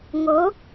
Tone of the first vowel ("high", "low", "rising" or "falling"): rising